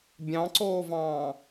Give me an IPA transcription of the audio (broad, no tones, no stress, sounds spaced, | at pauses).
bʲ ɑ̃ ǀ oː v ɑ̃ː